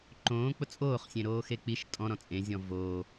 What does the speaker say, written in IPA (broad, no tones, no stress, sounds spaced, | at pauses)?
ǃ õː k͡p ʊ t͡sʼ oː χ sʲ ẽ ɾ oː x e k͡p i ʃ tʼ ɔ̃ ɾ ɔ̃ t͡sʼ ẽ zʲ ɔ̃ v oː